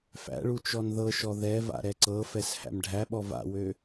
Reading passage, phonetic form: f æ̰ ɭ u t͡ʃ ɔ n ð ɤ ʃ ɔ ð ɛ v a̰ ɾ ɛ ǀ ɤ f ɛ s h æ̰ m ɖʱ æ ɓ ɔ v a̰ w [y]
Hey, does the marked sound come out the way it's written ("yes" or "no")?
no